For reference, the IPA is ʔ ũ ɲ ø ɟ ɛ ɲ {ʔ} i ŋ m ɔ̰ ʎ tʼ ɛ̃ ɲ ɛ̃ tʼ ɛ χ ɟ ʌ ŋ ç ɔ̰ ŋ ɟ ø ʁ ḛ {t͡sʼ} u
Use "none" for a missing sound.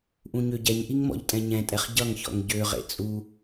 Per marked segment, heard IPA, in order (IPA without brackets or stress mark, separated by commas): ʔ, t͡sʼ